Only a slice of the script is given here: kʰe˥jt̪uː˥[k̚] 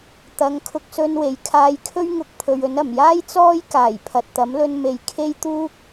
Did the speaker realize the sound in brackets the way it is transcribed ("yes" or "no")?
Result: yes